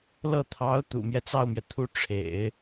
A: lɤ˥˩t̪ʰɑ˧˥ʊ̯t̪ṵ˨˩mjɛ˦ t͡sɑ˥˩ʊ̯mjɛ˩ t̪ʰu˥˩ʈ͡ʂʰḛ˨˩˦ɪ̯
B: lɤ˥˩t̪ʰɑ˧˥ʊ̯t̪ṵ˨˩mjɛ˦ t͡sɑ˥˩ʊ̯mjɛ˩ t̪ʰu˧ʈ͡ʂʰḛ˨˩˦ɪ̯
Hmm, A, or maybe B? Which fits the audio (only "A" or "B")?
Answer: A